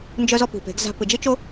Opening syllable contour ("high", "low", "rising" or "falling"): high